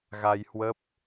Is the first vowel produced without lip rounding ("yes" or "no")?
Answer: yes